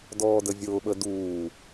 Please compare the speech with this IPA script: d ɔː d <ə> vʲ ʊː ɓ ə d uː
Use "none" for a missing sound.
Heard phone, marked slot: ə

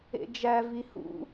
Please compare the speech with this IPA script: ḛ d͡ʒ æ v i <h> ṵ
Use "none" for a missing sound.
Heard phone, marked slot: h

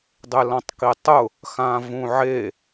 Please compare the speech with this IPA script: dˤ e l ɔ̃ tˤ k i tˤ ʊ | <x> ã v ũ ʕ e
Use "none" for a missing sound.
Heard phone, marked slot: x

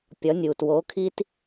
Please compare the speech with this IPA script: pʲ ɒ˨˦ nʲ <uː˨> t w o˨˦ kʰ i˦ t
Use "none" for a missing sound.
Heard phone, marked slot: uː˨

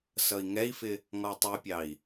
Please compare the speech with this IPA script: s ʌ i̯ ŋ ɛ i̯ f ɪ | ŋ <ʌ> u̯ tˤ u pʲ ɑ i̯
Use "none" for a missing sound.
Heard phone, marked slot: ɔ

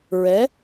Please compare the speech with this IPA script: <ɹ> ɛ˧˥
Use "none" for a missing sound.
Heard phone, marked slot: ɹ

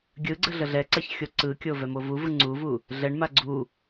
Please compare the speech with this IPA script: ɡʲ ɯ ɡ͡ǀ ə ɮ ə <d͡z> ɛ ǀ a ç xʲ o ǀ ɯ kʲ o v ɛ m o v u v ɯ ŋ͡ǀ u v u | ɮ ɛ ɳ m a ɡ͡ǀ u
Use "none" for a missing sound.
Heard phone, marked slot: ɮ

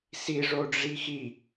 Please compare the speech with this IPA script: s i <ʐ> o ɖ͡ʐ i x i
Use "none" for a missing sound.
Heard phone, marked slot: ʐ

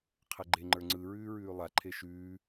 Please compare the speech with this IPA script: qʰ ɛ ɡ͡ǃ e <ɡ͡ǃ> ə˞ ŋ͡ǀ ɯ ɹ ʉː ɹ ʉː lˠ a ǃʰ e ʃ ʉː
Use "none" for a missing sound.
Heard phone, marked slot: ŋ͡ǃ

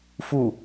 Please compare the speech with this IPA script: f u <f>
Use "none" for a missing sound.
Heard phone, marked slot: none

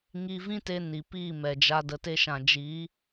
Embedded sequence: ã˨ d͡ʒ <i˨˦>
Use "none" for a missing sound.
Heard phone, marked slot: i˨˦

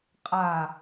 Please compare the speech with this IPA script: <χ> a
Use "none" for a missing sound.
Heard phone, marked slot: qʼ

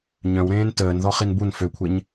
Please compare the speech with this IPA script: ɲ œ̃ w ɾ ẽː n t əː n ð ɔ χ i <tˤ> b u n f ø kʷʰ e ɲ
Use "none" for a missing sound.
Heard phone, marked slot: n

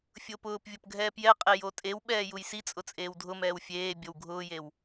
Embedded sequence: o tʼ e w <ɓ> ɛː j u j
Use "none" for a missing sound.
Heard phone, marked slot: ɓ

